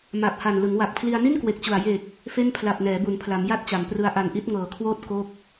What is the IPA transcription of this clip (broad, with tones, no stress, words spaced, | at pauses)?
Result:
ma˨˩p̚ha˨˩n lɯ˩˦ŋwa˨˩k̚pʰli˧a̯ ni˥˩nkwe˨˩k̚t͡ɕu˨˩a̯ je˨˩k̚ | fe˥˩n pʰla˨˩p̚nɛː˩˦bu˩˦npʰla˩˦m ja˥˩t̚t͡ɕa˩˦mprɯ˧a̯ ʔa˨˩nʔi˦˥t̚ ŋɤː˩˦kʰwoː˦˥t̚ ko˦˥k̚